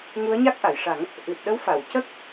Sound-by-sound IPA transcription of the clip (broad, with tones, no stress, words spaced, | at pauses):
ŋu˧˥ə̯ɲa˦˥k̚ ʔa˨˩˨jʂa˨˩˦ŋ | ʔɨ˨˩t̚ɗə˧˥wfa˨˩˨wcə˦˥k̚